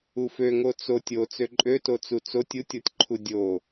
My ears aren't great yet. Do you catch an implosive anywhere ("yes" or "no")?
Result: no